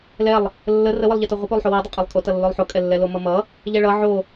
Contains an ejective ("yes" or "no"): yes